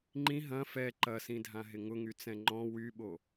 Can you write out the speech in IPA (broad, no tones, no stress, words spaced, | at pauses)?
ŋ͡ǃĩ ɦɐ̃ fɛ ǃɐsĩdʱãɦɪ ŋʊŋyt͡sɛ̃ ŋ͡ǃɔ̃ wyɓo